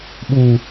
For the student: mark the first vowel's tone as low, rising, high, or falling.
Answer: low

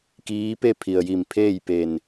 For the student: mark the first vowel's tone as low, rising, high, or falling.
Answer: rising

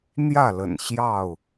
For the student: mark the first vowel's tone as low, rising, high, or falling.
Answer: falling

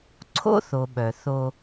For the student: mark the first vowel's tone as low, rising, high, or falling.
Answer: high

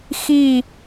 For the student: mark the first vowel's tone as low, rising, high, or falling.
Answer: falling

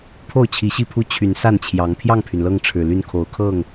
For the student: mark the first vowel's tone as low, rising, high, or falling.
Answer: falling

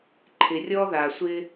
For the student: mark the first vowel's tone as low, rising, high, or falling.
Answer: low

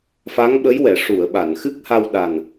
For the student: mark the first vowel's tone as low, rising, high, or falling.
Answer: rising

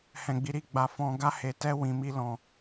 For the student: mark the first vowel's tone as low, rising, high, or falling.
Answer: low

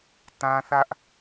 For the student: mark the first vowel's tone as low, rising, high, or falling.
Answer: high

